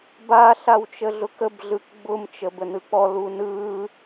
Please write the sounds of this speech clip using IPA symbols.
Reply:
b a ɬ a w t͡ʃ ə ɮ ʊ k ə b ɮ ɯ k ɡ͡b ʊ m t͡ʃ ə b ə n ɯ k͡p ɔ l u n ɯ

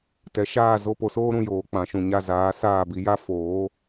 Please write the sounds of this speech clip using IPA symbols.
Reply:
t ɛ˨ ʃ aː˦˨ z o˦˨ p o˧ s oː˦ ɾ ũ˦˨ j oː˨ k͡p ã˨ ʃ ũ˨ ɲ a˧ z aː˨˦ s aː˦˨ b i˧ j a˦ f oː˨˦

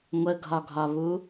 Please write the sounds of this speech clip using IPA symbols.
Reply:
ŋʷ ə ɡʱ ɒ ɡʱ ɒ β u

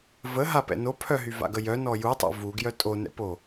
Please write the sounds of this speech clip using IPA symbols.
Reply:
v ə ɦ a p ɛ̰ n o pʰ œ ɦ y v a̰ ɡ ə j œ n ɔ j u tˤ a̰ v u ɡ j œ tʼ o n ɛ̰ p o

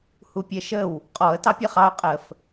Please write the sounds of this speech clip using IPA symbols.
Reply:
h u pʲ ɛ ʃ ə w | qʼ ɔ ə̯ t ɑ pʲ ɛ χ ɑ ʊ̯ qʼ ə f

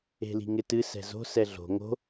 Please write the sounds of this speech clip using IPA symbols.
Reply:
e̤ l i̤ ŋ ɪ t ɨ s ɛ̤ z o̤ s ɛ ɮ o̤ ŋ o̤

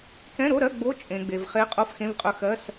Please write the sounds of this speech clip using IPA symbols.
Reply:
k ɛ̃˧˥˧ ɾ o˧˥˧ ɾ ɜ˧˥˧ ɡ͡b o˧˥˧ t͡ʃʼ ẽ˨ ɡ͡b e˨ v χ e˧˥ qʼ o˧˥˧ f x ẽ˧˥˧ v qʼ ɵ˧˥ x ɜ˧˥˧ s

